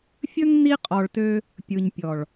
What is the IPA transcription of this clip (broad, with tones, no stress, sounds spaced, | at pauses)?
fʲ ɵ˦ ŋ n i˧ qʼ ɔ˨ ɭ t ø˧ | pʲ ɯ˨ ɲ pʲ ɔ˨ ɭ